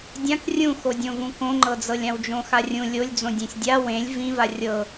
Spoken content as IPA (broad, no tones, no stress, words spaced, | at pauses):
dʲãk rʲũxodʲõvũ kõŋ͡ǃɤd͡zɤlʲ ãwd͡ʒõxarʲũ lʲolʲd͡zõ dʲẽsʲdʲa wẽlʲ vĩva rʲɤ